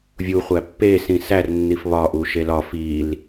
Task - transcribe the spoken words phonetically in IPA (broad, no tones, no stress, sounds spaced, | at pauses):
vʲ u χʷ æ pː e s ĩ s æ r nː i f β ɒ ʔ u ʃ e l ɒ f i l